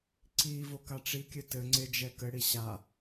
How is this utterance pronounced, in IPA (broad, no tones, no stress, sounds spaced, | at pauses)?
ǀ i v o k a ʈ͡ʂ i kʲ ɘ t ɘ ŋ͡ǀ e d͡ʒ ɛ k ɘ ɽ i ɕ a